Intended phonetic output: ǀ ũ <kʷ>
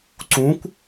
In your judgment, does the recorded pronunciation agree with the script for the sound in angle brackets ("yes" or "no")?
yes